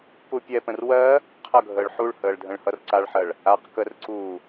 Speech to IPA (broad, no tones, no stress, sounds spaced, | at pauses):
p u pʲ ɛ p ə̃ r w ɜ | qʰ ʌ ɡʱ əː ɭ ħ u ɭ h əː ɭ dʱ ə̃ ɭ h ʌ r ǀ a ɭ ħ ɜ ɭ | a q k ə r ǀ uː